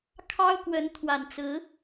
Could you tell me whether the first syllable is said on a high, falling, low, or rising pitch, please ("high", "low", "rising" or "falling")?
high